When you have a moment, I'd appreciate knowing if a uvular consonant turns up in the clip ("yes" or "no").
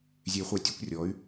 yes